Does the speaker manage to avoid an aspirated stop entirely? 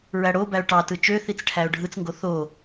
no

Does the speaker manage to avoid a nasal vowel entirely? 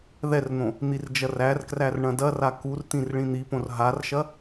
no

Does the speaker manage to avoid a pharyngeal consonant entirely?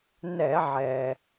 no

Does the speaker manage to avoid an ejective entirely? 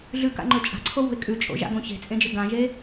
no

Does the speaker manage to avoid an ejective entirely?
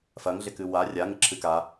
yes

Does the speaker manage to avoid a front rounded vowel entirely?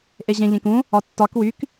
no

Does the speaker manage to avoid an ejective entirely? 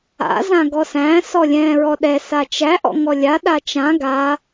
yes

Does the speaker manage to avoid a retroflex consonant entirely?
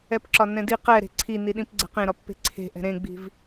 yes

